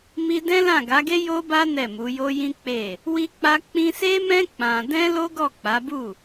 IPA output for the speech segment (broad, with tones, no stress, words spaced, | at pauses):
mi˧ dɛ̃˦lã˦˨ɡa˨˦ɡe˦ jo˦ba˦ nɛ˦˨mu˨˦jo˦ jĩ˦ k͡pe˦˨ | wi˧ k͡pa˦ k͡pĩ˧se˦mɛ̃˦ k͡pã˧ dɛ̃˦lo˦ɡɔ˦˨ k͡pa˨˦bu˦˨